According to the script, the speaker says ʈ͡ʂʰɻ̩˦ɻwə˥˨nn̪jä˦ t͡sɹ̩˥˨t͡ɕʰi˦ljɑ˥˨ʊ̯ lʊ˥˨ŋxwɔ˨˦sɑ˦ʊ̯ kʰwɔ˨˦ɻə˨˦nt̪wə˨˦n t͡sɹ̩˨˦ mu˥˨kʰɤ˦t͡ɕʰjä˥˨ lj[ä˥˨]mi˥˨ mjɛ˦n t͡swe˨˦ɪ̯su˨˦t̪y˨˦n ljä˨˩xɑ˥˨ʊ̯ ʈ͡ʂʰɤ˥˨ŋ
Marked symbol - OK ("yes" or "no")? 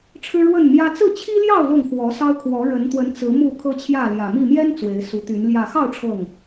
no